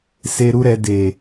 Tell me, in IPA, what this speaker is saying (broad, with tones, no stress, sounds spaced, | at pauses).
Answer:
s e˧ ɾ u˦ ɾ ɛ˧ d e˨